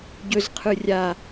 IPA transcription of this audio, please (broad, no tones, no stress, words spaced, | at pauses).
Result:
ɟɵzqʰɯ rʲa